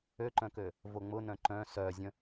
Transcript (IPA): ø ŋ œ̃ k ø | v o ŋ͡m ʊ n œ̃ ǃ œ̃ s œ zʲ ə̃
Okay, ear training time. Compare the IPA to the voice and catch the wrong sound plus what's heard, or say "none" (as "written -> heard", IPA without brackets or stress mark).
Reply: ŋ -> ǃ